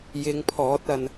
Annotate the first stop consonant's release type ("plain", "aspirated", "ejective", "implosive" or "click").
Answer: aspirated